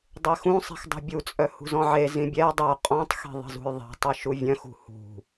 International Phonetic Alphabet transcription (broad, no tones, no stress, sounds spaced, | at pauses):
dˤ e x ũ sˤ i̤ x dˤ ṳ bʲ u t͡sʼ œ h ṳ z ɔ̃ ʕ e z ĩ bʲ ɛ dˤ œ qʼ ɔ̃ tˤ x i̤ ðˤ i̤ z ṳ j ðˤ i̤ tˤ ɘ ʃ u vʲ œ̃ x ṳ h ṳ